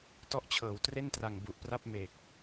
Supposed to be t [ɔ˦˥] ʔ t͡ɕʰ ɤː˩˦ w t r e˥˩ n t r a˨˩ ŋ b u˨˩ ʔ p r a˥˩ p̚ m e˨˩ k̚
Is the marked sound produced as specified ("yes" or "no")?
yes